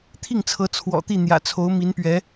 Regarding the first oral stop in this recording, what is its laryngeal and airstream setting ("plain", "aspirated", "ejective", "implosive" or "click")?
aspirated